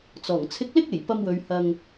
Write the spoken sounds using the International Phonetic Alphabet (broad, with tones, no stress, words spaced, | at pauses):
t͡sɔː˨˩ŋ t͡sʰɪ˧k̚lɪ˥k̚ e˨˩jpɐ˧mwɵ˨˧ɥ hɐ˧ŋ